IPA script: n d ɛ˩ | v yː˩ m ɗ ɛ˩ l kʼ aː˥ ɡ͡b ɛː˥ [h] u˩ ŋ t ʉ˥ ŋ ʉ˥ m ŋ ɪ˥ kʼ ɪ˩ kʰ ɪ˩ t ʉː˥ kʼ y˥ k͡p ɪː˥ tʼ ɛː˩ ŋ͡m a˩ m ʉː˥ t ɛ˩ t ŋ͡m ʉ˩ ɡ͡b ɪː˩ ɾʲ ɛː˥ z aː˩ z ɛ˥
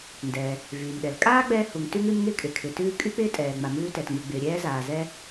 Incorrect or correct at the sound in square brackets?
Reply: correct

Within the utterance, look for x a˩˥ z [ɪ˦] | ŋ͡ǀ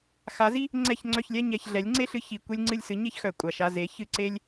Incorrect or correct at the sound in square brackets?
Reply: incorrect: i˦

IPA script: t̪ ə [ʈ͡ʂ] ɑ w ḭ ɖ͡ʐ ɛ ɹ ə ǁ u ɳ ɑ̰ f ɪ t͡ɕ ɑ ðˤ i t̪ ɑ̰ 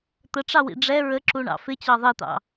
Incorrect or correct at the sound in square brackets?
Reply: correct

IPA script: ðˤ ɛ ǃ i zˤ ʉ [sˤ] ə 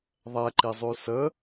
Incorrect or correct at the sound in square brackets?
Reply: incorrect: s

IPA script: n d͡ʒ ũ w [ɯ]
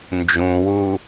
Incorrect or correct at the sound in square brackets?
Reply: incorrect: u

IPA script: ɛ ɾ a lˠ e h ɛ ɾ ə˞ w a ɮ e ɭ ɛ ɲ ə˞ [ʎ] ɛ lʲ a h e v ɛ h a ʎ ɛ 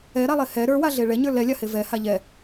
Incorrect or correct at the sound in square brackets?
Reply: incorrect: l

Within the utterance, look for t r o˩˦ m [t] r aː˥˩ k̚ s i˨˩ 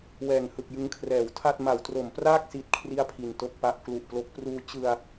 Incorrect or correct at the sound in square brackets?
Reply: incorrect: p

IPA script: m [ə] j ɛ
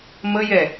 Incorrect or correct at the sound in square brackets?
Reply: correct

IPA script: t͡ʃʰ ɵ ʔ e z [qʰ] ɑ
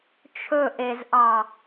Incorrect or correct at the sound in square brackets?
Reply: incorrect: ʔ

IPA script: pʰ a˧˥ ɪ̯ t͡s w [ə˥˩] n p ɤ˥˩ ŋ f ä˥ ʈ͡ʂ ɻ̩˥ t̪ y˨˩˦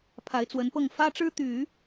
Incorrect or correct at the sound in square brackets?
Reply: incorrect: ə˧˥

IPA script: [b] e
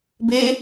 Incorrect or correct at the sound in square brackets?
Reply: correct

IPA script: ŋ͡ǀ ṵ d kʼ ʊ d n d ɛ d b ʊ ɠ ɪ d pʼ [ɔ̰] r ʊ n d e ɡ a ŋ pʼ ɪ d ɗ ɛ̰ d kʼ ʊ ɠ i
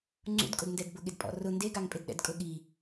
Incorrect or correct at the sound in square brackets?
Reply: correct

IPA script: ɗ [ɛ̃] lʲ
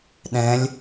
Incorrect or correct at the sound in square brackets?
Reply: correct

